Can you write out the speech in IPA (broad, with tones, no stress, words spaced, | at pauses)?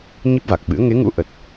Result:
ɲi˦˥p̚va˨˩k̚ɓɨ̰˧˥ə̯ ŋe˨˦ŋṵ˧˥ ʔə˨˩t̚